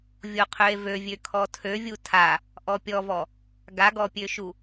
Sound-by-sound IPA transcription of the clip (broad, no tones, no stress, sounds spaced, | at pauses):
vʲ o qʰ ø e̯ v ø vʲ ø kʰ ɔ tʰ ø vʲ u tʰ a | ʔ ɔ pʲ ɔ v ɔ | ɡ a ɡ ɔ pʲ ø ʃ u